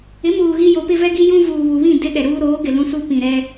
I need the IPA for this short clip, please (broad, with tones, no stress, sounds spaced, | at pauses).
ɪ˨˦ m uː˨ ɣ i˦ j o˨˦ p ɪ˦ v ɛ˦ ɡ i˦ j ũ˦ v uː˨ β u˨ β ĩ˦˨ d ɪ˦ ɗ ɛ˨ ɾ uː˦ ɾ oː˨˦ ɡ ɪ˨ l ũ˦ s u˦ p ĩ˨ ɾ ɛ˦